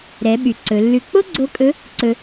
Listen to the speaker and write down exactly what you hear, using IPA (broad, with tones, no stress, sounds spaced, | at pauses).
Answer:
ɾ ɛ˩˧ ɓ y˩ ǀ ɵ˩˧ lː ʉ˧ k͡p o˥ ɡ͡ǀ o˧˥ kʼ ɵ˧˥ | ǀ ɵ˧